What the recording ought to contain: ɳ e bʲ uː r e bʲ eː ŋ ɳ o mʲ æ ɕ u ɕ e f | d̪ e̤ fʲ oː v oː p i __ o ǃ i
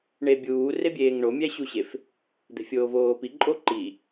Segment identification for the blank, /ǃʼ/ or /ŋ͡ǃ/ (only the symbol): ǃʼ